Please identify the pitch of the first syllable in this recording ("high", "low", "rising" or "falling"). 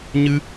high